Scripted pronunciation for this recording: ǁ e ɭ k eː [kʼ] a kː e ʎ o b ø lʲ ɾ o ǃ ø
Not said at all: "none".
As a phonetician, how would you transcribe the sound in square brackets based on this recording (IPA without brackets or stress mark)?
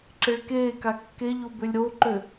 k